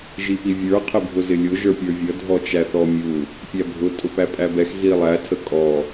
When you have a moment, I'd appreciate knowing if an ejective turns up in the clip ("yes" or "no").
yes